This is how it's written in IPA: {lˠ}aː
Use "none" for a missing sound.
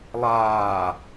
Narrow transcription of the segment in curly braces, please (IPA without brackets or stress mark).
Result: lˠ